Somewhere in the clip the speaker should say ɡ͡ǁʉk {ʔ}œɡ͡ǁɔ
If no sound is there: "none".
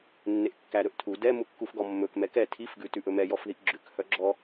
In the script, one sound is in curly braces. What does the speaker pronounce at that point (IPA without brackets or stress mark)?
h